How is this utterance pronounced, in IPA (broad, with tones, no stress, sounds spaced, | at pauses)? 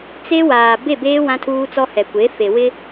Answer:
t͡s e˦ w aː˨ b e˦˨ b eː˦ w ã˦ tʰ uː˦ t͡s ɔ˦ h ɛ˨ kʷ e˨˦ f e˨ w ɪ˦